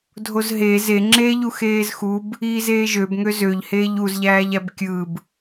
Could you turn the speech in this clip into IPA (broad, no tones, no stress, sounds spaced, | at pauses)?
dʱ o z ɦ eː z e ŋ͡ǁ eː ʎ u x eː z x u b | iː z eː ʒ ø b ŋ ø z ø ʎ h eː ʎ u z ʎ æː ʎ æ b kʲ ɯ b